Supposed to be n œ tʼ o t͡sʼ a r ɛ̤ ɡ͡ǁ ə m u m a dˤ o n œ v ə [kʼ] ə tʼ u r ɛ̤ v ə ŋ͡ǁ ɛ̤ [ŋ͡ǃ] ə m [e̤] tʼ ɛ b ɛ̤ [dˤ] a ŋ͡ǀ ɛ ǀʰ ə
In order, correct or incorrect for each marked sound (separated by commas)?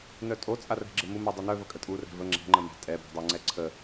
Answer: correct, correct, incorrect, correct